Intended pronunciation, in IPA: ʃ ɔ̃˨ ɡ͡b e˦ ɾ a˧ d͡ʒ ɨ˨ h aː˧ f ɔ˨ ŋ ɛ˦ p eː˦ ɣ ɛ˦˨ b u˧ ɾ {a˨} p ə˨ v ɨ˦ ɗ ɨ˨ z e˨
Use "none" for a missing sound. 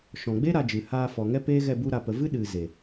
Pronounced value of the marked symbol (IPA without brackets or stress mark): a˨